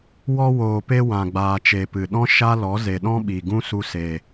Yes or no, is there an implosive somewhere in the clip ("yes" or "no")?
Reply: yes